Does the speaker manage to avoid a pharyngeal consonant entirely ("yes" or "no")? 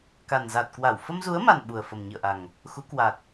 yes